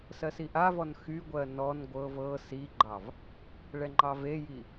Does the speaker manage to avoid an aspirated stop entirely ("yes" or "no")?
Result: yes